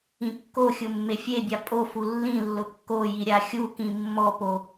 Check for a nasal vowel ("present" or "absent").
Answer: present